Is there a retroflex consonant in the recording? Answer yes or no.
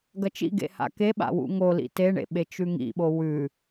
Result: yes